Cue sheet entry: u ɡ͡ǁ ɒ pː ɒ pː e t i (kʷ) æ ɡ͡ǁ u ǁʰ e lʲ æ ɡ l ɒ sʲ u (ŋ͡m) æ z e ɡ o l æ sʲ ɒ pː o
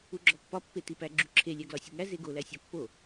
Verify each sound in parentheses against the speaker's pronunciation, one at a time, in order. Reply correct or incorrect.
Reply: incorrect, incorrect

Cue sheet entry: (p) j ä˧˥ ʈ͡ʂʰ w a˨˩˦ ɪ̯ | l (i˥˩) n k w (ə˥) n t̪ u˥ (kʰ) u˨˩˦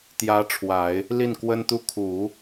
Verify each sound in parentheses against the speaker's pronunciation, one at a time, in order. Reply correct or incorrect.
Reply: incorrect, correct, correct, correct

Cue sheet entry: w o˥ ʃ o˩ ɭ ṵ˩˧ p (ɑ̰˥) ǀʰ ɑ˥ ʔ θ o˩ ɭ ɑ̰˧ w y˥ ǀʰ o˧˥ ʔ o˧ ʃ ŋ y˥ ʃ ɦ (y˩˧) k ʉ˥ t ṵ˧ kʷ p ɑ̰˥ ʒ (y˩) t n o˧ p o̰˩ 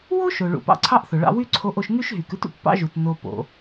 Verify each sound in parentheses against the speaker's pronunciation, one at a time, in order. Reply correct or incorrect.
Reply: correct, incorrect, incorrect

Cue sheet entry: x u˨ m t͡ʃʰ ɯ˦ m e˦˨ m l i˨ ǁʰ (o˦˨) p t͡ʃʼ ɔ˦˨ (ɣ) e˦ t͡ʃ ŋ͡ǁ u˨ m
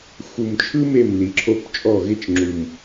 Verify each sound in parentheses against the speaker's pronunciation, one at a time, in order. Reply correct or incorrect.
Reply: correct, correct

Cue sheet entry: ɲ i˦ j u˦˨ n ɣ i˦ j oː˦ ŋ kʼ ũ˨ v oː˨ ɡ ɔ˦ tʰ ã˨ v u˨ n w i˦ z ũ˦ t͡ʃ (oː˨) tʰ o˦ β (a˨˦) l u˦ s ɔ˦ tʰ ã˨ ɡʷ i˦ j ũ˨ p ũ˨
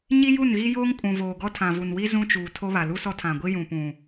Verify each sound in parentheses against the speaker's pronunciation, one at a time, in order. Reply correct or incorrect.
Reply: incorrect, incorrect

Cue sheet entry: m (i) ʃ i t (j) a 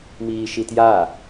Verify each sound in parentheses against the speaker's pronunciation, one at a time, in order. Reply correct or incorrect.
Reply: incorrect, correct

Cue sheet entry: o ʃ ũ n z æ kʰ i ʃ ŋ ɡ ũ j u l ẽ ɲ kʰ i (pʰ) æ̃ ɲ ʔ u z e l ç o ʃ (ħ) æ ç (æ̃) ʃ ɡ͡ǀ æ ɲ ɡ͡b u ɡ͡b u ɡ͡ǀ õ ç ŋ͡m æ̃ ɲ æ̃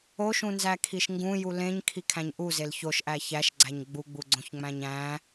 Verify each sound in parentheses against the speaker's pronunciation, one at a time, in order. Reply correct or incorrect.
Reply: incorrect, incorrect, incorrect

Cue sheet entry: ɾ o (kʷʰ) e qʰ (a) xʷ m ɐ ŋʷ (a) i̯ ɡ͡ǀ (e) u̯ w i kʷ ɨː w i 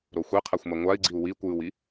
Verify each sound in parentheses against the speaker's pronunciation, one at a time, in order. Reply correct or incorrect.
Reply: incorrect, correct, correct, incorrect

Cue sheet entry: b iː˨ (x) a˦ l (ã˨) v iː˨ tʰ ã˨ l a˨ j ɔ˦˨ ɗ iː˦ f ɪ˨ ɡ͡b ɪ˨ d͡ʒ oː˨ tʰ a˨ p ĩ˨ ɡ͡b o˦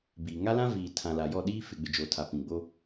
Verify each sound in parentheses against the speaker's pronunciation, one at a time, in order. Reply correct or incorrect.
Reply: incorrect, incorrect

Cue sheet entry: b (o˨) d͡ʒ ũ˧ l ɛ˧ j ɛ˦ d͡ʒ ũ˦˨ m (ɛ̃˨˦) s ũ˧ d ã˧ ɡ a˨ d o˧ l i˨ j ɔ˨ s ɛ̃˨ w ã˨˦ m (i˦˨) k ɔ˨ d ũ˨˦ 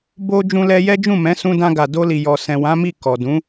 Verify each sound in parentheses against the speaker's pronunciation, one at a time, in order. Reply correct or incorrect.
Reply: incorrect, correct, correct

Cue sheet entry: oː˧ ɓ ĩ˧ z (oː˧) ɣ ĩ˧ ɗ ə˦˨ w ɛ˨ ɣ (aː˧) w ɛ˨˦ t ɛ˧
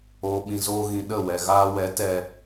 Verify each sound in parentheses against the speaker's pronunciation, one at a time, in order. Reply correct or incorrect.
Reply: incorrect, correct

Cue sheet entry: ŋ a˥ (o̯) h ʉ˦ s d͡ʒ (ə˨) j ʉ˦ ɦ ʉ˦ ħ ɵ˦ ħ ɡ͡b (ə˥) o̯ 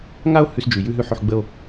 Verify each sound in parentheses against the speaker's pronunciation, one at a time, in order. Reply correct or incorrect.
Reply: correct, incorrect, correct

